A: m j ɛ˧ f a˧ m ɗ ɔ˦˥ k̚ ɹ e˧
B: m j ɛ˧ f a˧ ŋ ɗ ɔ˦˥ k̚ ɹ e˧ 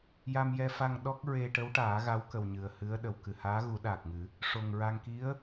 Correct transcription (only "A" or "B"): B